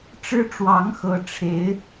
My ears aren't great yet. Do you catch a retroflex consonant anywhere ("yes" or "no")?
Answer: yes